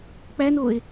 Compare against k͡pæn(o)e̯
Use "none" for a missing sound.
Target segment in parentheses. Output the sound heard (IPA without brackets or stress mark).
o